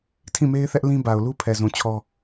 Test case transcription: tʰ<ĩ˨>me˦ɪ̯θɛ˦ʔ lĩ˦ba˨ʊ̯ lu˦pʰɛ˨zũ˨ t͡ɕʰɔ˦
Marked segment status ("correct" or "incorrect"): incorrect